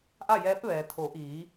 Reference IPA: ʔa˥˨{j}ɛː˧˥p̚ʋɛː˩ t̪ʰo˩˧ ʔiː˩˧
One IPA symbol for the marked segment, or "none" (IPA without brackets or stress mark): j